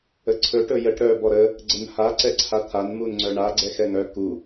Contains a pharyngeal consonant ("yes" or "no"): no